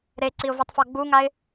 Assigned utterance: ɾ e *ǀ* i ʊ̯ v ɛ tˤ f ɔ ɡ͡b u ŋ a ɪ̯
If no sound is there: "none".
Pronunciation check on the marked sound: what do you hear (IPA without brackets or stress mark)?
ǀ